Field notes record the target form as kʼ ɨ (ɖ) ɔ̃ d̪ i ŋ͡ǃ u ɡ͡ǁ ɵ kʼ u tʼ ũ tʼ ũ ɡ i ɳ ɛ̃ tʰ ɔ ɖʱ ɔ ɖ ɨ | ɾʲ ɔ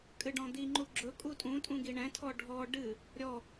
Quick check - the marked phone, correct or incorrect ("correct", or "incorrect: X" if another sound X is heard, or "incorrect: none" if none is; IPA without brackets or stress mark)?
correct